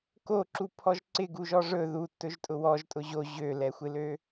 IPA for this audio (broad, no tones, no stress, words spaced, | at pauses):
koǁupʰɔʒ ǀɪɡuʒɔ ʐɵ ðutːɵʒtʼʊ wɔʒtʼʊ ʑo ʑølɛxʷɪlø